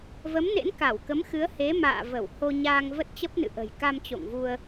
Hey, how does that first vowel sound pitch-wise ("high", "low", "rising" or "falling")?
rising